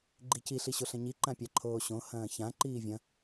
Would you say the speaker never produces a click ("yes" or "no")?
no